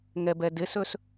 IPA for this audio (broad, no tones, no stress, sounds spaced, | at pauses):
ŋ ɛ b ɛ d ɪ s ɵ s